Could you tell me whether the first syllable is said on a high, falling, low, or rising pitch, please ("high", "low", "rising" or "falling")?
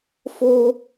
high